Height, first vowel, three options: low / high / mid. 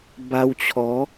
low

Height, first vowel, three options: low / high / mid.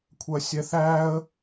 low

